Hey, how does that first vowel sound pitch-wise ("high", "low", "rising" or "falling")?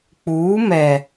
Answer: rising